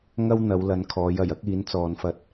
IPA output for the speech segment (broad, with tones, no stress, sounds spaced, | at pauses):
ŋ ɐ˥ w n̪ ɐ˨˧ w l ɐ˨˧ n kʰ ɔː˨˧ j ɐ˨˩ j ɐ˥ k̚ iː˨˥ n t͡s ɔː˨˧ n f ɐ˧ t̚